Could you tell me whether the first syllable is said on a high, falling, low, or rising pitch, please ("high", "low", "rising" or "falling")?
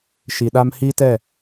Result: low